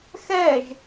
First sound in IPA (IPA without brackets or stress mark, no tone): x